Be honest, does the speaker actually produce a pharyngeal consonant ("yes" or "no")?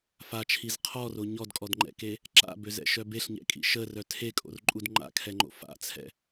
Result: no